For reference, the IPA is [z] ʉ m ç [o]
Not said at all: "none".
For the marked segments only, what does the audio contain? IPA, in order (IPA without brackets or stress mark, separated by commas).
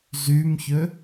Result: z, ɵ